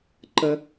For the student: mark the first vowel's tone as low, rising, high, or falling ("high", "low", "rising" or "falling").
low